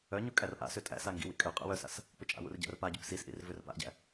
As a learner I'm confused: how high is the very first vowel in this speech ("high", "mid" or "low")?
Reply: mid